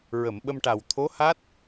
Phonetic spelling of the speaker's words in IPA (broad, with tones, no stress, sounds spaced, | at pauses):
ɹ ə˨˩˨ m ɓ ə˧ m ʈ a˨˩ w t̪ʰ o˧˥ h a˦˥ t̚